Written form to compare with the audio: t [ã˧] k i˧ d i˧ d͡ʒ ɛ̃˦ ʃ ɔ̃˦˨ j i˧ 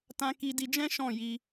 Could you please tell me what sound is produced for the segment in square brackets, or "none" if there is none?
ã˧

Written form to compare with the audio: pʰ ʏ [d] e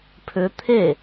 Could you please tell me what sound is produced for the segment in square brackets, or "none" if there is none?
t̪ʰ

